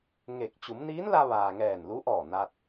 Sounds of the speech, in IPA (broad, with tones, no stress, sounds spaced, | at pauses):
ŋ e˧˩ k̚ t͡ɕ u˩˧ m n iː˧˥ n l a˧ ʋ aː˩ ŋ ɛː˧˩ n l u˧˥ ʔ ɔː˧˩ n a˧ t̚